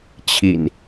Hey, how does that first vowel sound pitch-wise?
low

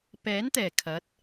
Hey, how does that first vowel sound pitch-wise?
rising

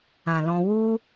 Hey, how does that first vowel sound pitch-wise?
low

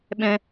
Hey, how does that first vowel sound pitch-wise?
high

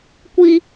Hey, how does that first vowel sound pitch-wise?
high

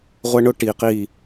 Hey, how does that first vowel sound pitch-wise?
high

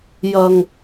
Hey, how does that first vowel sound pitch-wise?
low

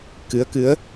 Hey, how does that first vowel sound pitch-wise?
rising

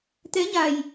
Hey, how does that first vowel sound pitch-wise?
rising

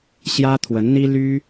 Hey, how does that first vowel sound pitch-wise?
high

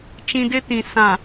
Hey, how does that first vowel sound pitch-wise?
high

